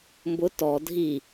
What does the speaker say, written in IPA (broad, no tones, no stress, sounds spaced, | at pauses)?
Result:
m b ʊ t ɔ dʱ i